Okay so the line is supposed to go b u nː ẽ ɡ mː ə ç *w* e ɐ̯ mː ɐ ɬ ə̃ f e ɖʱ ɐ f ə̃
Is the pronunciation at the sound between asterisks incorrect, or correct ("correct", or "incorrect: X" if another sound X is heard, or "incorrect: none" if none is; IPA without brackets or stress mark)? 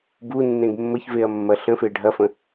incorrect: v